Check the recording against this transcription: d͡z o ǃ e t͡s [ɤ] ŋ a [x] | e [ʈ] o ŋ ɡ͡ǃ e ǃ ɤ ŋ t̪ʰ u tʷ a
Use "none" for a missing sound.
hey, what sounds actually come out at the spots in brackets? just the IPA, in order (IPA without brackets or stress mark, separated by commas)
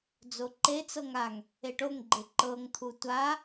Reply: ɤ, ŋ, ʈ